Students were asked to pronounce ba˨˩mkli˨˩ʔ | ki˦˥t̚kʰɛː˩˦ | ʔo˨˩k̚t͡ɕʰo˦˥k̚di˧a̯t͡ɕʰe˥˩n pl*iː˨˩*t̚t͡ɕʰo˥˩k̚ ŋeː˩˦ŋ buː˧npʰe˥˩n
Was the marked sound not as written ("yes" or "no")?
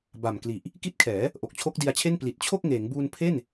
yes